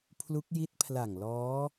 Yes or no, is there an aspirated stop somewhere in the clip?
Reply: yes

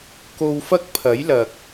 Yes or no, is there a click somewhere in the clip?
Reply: no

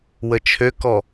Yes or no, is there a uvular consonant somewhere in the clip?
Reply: no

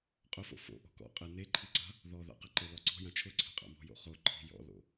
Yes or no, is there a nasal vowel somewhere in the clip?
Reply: yes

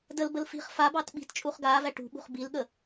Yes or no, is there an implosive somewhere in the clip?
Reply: yes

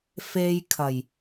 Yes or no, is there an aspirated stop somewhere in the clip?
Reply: yes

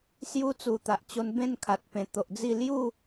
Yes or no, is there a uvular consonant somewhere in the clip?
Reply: no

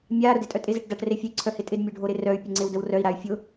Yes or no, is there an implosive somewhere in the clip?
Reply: no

